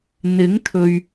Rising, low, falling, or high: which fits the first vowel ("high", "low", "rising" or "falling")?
rising